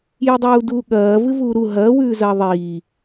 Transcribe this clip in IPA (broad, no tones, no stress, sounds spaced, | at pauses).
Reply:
j ɨ dˤ uː d uː ɠ ɐː v ɨ v uː ɾ u ɦ ɐː w ʉː z ɐː ðˤ iː